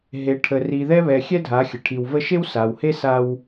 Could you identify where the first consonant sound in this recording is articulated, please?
glottal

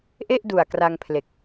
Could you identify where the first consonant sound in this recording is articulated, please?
glottal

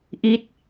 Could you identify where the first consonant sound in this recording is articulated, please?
glottal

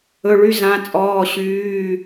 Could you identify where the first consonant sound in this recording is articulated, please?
retroflex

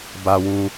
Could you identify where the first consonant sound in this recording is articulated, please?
labial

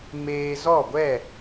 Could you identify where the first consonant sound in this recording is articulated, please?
labial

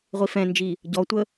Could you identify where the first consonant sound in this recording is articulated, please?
uvular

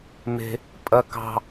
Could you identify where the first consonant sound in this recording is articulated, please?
labial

